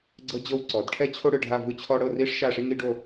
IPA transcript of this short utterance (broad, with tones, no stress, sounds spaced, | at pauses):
ɡ͡ǀ ɤ˥ d͡ʑ ɤ˥ w ǀ ɔ˩˧ d ʈʰ ɛ˥ t͡ɕʰ o˥ ɽ ɯ˧ ɖʱ a˥˧ v ɯ˥˧ t͡ɕʰ ɔ˥ ɽ ɤ˥˧ r i˥ ʂ ʃ a˥˧ ʂ i˥ ŋ i˥ ɖ o˥˧